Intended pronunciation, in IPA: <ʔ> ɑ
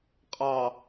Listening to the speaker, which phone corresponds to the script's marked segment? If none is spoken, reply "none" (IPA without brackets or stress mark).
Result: qʼ